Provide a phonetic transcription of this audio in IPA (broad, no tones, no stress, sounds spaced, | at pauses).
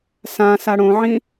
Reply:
s ã s a ɽ õ ʕ ĩ